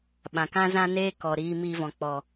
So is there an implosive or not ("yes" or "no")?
yes